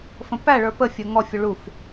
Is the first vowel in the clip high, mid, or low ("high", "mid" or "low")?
mid